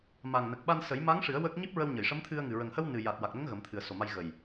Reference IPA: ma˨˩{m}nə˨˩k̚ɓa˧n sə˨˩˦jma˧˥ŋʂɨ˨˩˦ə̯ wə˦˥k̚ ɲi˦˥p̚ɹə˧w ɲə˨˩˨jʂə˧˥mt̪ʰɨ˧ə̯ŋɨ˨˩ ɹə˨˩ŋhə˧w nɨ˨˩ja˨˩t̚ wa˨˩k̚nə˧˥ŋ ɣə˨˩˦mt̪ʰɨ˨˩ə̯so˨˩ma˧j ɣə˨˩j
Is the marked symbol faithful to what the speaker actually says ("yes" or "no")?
no